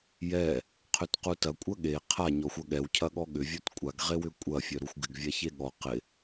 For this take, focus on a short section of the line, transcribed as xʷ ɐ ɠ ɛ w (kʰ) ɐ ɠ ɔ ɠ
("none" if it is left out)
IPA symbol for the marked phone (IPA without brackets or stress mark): cʰ